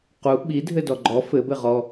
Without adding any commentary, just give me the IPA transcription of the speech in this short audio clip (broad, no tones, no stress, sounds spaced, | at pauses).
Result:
q u ɓ i dʱ ɘ d ɔ ɡ͡ǃ ɔ f ɘ b ɘ ʁ ɔ